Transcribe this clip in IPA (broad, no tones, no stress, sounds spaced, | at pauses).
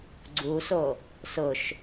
ɡ͡ǀ u s o | s ʊ ʃ